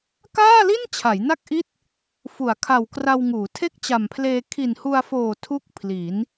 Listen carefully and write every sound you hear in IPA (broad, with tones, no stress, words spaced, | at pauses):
kaː˥˩li˥˩n t͡ɕʰa˩˦jna˥˩k̚ʔi˥˩t̚ | fu˩˦a̯kʰa˨˩w kra˧wŋuː˩˦ tʰe˥˩k̚t͡ɕa˨˩mpʰleː˧ kʰi˨˩nhu˧a̯foː˨˩ tʰu˥˩k̚pʰli˩˦n